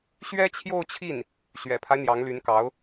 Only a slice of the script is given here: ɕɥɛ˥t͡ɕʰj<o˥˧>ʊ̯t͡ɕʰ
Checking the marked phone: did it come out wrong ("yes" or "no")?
no